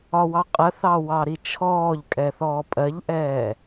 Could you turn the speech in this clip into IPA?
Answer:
ɒ w ɑ qʼ ɜ θ ɑ w ɑ ɾ i t͡ʃʰ ɔː ʎ kʼ ɛ θ ɔː pʼ ɜ ʎ ʔ ɛː

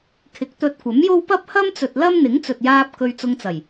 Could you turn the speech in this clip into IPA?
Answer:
kʰ ɪ˨˥ k̚ t̪ ɵ˧ t̚ kʷ ɐ˨˥ m j o˥ w p ɐ˥ p̚ h ɐ˥ m t͡s ɵ˨ t̚ l ɐ˥ m n̪ ɪ˨˥ ŋ t͡s ɵ˨ t̚ j aː˧ p̚ k ɵ˧ ɥ t͡s ʊ˧ ŋ t͡s ɐ˨˩ j

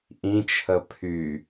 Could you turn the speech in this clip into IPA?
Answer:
ʔ ĩ t͡ʃʰ ə pʰ y

